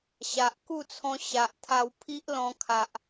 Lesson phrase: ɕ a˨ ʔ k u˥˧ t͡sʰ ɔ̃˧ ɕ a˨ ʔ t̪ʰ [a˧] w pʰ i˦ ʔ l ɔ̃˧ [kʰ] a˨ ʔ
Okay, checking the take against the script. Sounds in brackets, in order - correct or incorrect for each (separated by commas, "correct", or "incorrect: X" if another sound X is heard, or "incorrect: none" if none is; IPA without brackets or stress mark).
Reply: correct, correct